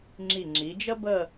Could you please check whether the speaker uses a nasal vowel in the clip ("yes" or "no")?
no